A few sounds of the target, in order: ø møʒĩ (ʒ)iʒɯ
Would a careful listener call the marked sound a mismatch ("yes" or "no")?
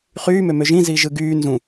yes